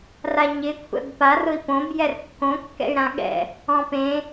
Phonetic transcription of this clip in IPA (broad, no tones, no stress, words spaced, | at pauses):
raɲɪ kʷʰɛ̰bpar ʊi̯põb jɛrkːõ kːɛ̰y̯ɾãɠɛ̰ | ɔ̃pẽ